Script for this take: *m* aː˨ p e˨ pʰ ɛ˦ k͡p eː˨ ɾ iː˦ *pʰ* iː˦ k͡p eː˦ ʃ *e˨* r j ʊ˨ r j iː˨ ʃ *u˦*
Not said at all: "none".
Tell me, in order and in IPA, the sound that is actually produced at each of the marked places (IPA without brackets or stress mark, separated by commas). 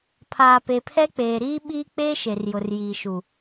pʰ, ɓ, e˨, u˨